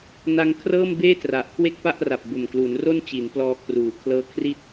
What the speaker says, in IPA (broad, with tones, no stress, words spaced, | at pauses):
na˧ŋkʰrɤː˥˩mbeː˥˩ tra˨˩ʔkʰwe˥˩k̚pa˥˩ʔra˨˩p̚ bo˨˩mklu˩˦nro˥˩n t͡ɕi˩˦nplɔː˧kʰruː˩˦kʰlɤː˦˥ kʰri˥˩t̚